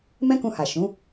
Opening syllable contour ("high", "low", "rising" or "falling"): high